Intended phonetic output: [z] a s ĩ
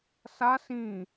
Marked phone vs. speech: incorrect: s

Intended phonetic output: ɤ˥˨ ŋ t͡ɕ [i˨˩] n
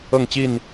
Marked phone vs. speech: incorrect: i˥˨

